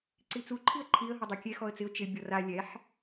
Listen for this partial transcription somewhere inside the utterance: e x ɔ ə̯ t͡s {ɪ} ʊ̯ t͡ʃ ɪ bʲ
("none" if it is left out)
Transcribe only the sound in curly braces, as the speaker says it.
ɪ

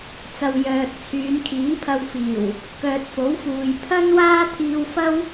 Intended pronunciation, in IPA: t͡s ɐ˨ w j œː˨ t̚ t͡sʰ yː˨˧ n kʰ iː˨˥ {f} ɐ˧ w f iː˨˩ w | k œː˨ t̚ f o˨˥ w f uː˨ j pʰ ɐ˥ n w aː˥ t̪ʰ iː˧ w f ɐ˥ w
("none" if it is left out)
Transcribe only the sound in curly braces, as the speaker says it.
pʰ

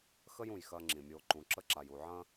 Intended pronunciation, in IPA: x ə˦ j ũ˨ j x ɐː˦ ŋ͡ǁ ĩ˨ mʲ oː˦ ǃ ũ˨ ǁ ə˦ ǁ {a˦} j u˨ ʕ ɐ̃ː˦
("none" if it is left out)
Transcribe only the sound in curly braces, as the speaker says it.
a˨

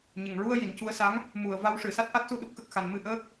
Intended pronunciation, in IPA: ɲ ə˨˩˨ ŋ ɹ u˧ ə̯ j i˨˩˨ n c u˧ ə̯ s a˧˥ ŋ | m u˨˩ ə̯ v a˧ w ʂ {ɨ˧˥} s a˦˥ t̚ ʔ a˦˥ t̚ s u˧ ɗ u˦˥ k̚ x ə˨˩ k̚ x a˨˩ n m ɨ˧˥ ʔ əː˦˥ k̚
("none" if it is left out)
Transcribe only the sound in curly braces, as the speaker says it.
ɨ˨˩˨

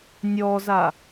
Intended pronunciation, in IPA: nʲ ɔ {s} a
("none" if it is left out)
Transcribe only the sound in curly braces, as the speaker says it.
z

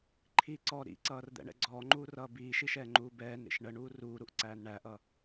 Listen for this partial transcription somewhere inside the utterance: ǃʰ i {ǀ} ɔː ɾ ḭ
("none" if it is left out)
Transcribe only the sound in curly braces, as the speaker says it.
ǀ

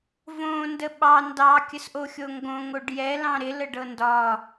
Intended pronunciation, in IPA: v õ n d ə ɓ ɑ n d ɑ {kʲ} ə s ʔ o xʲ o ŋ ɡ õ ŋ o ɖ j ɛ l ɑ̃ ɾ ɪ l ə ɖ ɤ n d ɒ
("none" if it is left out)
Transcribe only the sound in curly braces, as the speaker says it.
kʲ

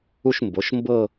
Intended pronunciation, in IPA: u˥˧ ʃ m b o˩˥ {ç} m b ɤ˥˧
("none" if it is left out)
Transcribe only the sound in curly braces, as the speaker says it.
ʃ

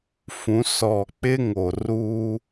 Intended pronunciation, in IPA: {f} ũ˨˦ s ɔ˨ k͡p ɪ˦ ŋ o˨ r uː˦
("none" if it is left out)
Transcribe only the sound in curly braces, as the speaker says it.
f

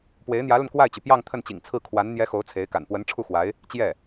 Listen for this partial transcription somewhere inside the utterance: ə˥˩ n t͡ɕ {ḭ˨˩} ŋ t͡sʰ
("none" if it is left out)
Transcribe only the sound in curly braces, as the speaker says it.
ḭ˨˩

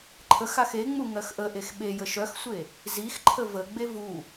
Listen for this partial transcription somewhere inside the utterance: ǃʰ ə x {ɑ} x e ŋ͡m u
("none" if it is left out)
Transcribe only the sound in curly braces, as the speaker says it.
a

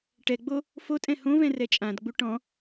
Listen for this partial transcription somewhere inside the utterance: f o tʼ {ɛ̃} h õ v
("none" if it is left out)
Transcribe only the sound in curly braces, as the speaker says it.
ɛ̃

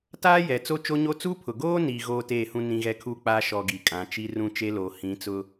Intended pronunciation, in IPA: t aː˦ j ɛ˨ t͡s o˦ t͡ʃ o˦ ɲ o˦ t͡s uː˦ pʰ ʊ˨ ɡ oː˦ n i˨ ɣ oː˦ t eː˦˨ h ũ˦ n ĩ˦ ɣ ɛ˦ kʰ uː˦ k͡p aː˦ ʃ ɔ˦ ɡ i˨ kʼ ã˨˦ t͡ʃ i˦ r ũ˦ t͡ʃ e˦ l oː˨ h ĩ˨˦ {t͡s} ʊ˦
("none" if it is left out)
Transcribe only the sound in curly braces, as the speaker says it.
t͡s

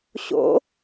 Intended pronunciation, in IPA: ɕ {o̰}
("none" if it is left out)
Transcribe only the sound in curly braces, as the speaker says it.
o̰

